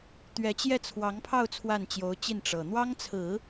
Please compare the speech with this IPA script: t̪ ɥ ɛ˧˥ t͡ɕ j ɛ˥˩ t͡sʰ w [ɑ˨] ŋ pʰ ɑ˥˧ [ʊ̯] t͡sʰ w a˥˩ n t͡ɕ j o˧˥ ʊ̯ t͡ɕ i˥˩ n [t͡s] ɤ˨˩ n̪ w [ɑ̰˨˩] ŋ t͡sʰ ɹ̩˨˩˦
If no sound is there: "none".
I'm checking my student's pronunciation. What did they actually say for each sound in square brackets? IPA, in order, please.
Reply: ɑ˧˥, ʊ̯, ʈ͡ʂ, ɑ˥

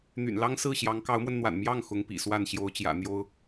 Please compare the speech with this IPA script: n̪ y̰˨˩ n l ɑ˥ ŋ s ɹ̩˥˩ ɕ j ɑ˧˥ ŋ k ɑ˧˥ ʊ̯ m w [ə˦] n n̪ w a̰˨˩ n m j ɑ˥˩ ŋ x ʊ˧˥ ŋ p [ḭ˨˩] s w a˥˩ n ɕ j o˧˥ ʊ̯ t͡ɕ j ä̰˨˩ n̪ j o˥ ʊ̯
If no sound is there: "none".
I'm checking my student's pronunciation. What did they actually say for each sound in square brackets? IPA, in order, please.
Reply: ə˧, ḭ˨˩

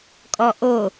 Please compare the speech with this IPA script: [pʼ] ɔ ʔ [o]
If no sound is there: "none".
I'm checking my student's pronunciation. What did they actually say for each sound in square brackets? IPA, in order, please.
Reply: kʼ, o

